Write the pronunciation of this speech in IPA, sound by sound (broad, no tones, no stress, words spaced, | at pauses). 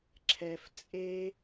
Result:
ǁʰɛf t͡sʼe